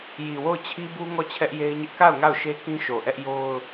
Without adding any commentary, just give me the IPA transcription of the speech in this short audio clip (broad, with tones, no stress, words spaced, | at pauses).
ji˨wo˦˨ʊ̯t͡ɕʰi˦bu˦ ŋɔ˦˨t͡ɕʰɛ˦ʔje˦ɪ̯ɲɪ˦ʔ ka˦˨ʊ̯ ŋa˦˨ʊ̯ʃe˦ kĩ˦ʃo˨ ʔɛ˦ʔjo˦ʊ̯